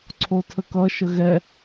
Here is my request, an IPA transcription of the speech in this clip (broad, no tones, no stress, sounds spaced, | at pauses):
ǀʰ o tʰ ə k ʌ ʃ ə ɣ ɛ